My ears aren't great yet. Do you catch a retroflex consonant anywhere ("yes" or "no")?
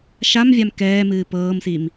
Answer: no